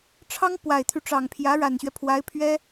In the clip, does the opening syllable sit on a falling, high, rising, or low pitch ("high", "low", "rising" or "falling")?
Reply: high